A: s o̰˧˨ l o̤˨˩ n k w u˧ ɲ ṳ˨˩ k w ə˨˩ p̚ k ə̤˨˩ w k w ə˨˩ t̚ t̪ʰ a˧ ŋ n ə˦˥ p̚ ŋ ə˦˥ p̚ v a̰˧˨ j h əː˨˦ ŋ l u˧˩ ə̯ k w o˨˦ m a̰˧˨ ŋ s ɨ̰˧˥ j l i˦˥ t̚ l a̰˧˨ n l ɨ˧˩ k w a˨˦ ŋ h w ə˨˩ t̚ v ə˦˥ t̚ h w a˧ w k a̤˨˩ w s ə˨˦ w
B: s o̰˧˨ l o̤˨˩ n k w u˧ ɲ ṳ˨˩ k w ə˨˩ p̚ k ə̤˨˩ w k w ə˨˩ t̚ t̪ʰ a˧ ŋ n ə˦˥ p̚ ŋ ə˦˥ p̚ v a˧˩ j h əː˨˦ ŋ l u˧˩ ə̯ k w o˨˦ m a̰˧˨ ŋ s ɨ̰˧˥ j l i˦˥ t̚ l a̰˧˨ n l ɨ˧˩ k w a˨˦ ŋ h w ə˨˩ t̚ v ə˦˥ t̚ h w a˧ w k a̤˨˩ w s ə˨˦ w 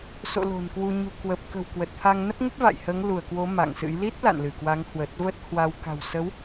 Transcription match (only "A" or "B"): A